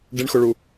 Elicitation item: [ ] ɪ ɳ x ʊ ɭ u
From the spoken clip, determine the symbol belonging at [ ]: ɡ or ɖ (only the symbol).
ɖ